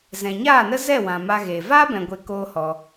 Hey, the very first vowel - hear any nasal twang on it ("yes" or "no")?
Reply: yes